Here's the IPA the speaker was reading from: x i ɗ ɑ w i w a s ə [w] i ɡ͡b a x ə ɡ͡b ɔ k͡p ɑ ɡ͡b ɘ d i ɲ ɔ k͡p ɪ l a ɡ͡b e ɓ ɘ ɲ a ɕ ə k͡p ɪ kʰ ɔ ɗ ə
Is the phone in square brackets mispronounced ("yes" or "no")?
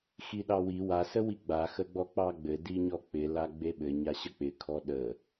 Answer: no